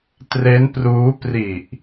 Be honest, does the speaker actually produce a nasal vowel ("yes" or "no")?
no